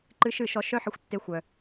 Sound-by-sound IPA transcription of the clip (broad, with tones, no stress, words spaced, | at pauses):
ǃɨ˧ʃɨ˦˨ʃɔ˧ ʃœ˦ħə˧xʷ tːe˧xʷœ˨